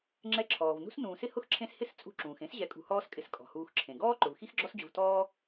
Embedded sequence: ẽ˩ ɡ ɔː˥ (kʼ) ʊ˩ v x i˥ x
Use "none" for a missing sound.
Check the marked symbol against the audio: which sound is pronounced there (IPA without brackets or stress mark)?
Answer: ǃ